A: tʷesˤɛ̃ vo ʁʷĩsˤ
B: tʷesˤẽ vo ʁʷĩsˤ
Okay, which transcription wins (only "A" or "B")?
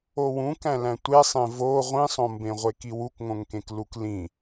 B